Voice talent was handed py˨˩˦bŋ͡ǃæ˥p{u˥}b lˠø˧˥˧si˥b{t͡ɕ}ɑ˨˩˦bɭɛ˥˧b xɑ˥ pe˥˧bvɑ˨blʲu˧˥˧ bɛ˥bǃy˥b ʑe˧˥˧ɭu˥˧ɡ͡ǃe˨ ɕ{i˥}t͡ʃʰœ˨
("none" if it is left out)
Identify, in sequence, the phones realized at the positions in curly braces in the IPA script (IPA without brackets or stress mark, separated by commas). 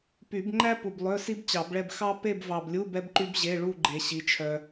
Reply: u˨, t͡ɕ, i˨˦